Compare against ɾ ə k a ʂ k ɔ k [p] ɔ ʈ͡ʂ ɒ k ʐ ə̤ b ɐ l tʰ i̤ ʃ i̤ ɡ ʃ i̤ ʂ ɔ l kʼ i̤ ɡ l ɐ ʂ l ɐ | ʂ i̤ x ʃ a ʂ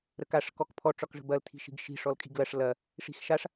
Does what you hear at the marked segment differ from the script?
yes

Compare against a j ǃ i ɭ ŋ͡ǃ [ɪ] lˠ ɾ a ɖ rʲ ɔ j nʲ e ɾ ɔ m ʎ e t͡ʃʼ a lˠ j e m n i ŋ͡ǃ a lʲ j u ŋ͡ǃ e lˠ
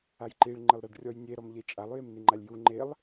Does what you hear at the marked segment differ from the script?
no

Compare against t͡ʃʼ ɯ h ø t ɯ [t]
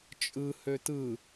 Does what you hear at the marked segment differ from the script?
yes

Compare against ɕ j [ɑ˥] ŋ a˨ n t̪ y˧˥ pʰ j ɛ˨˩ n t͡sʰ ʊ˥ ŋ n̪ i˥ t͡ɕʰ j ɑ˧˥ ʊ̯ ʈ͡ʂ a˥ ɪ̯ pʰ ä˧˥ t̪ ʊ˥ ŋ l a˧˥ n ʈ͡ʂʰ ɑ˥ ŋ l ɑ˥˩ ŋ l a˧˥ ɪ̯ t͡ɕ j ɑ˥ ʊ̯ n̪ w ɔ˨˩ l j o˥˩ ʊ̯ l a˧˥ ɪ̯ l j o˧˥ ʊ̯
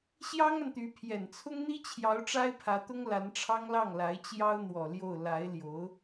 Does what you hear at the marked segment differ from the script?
no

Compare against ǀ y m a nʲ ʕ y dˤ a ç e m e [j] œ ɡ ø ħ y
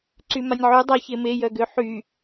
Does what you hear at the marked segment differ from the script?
no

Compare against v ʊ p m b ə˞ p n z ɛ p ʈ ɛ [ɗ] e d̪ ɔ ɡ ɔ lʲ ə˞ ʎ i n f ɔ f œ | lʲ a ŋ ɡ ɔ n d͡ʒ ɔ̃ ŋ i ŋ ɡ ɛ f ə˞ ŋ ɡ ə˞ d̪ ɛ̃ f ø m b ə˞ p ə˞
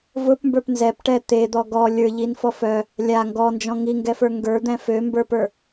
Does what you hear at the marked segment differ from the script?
yes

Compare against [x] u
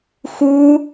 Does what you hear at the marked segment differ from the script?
no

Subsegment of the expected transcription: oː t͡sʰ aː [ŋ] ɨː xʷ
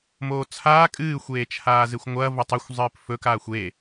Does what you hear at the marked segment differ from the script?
yes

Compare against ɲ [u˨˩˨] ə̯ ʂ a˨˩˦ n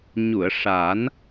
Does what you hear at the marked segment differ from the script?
no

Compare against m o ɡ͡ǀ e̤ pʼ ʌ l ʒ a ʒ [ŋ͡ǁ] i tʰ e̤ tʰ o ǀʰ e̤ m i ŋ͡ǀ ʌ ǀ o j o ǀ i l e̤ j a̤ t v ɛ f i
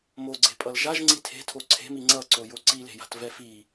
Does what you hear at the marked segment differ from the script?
yes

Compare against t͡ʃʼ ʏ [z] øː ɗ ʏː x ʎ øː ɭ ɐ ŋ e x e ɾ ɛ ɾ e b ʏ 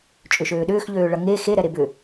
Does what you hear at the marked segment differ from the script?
yes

